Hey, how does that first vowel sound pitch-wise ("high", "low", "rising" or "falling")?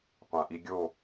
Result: low